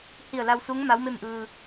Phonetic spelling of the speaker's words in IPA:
hi˧˩ə̯ la˧wsu˧˥ŋ ma˧˥wme˥˨mʔɯː˧

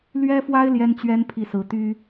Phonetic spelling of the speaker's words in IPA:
lɥɛ˥fwa˥ɪ̯ ljɛ˥nt͡ɕɥɛ˥n pʰi˥˩sɹ̩˧˥ t̪y˥

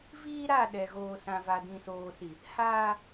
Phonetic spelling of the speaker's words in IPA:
viː˦ɾa˦˨ ɗɛ˨ɣoː˨sã˨ va˨dĩ˨soː˨si˨ | haː˦

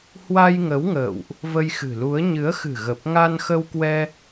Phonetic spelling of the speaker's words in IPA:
hwa˧jŋə˨˦wŋə̰ː˧˨wʔ | və˧jxɨ̤˨˩lu˨˦ə̯ ɲɨ˨˦ə̯xɨ̤˨˩ɣə˨˩p̚ ŋa˧nxə˧wkwɛ˧

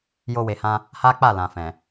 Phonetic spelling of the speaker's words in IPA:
jo˦we˧hã˦ | ha˦k͡pa˦˨ lã˨fɛ̃˨

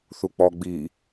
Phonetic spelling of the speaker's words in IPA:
θuk͡pɔ ɡ͡bi

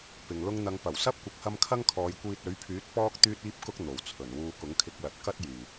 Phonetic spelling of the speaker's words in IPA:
pɪ˨ŋ lʊ˧ŋn̪ɐ˨˧ŋpɐ˨˩w sɐ˥p̚kʷɪ˨k̚hɐ˧m kʰɐ˥ŋkʰɔː˨˧j kʷiː˧t̚ɵ˨˥ɥpʰyː˨˥t̚ pɔː˥k̚ t̪yː˥t̚iː˥p̚kʊ˥k̚ n̪o˨˩wt͡sʰɵ˨˩n wuː˧kʊ˨˥ŋkʰɪ˧k̚lɐ˨˥t̚ kɐ˥t̚ jyː˨˩

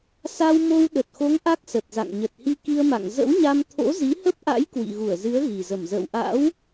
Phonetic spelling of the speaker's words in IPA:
sa˧wmo˧w ɗə˨˩t̚xo˨˦ŋ ʔa˦˥k̚sə˨˩t̚za̰˧˨ŋ ɲə˨˩t̚hi˧ki˧ə̯ma̰˧˨ŋ zə̰˧˥wɲa˧m t̪ʰo̰˧˥zi˨˦hə˦˥p̚ʔa̰˧˥j kwḭ˧˨ɣu˧˩ə̯zɨ˨˦ə̯ ɣi˨˩zə˧˩m zə̰ː˧˨wʔa̰˧˥w

